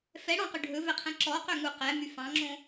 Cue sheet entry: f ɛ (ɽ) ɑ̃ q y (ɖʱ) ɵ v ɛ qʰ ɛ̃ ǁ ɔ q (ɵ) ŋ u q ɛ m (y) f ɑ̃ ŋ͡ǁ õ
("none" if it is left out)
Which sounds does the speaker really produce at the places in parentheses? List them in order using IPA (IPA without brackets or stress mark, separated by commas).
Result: ɽ, ɖʱ, ø, y